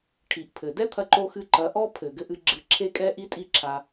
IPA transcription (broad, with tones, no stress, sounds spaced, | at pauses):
ʈʰ i˨ ʔ pʰ ɘ˨ d ɛ˦ t̪ʰ ɐ˧ ǃ o˧ x ɨ˧ ǃ ɐ˨˦ ʔ ɔ˦ pʰ ɘ˨ ɡ ɘ˧ ʔ ɨ˧ ɡ͡ǁ ɨ˧ ǁʰ e˦ kʼ ɛ˦ ʔ i˦ tʼ i˦ ǁʰ a˧